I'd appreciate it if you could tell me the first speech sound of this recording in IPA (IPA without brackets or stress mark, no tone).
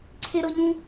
ǀʰ